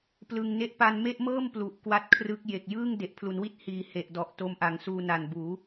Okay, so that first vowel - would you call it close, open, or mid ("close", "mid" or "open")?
close